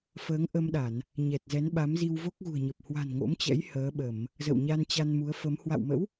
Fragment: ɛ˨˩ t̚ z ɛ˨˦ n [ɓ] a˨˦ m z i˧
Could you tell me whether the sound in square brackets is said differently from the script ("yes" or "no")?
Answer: no